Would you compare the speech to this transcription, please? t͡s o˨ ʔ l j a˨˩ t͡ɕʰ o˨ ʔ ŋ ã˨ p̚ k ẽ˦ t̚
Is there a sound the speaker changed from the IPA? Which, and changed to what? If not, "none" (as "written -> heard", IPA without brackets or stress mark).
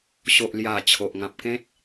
t͡s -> ɕ